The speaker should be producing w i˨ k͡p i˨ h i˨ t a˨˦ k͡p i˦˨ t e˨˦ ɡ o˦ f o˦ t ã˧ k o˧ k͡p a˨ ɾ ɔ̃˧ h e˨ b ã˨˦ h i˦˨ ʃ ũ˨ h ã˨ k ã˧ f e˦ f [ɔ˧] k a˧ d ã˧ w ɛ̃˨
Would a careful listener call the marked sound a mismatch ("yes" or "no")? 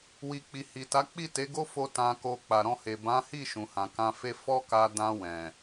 yes